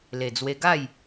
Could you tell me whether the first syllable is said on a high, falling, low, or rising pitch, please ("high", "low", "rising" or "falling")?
low